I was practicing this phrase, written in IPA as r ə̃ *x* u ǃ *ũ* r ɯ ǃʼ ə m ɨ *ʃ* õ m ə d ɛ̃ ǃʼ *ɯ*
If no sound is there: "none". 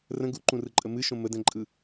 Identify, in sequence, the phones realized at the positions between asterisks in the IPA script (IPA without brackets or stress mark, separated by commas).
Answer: ɡ, ũ, ʃ, ɯ